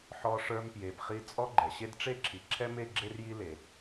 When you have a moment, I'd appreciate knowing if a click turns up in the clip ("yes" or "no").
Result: yes